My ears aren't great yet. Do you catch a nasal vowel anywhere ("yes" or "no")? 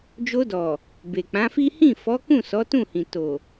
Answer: yes